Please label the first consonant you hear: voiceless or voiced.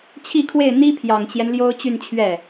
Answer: voiceless